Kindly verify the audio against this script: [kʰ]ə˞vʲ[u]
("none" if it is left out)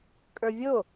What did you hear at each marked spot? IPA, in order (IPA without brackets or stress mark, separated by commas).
kʼ, o